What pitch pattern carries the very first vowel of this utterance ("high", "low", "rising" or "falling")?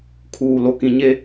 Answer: low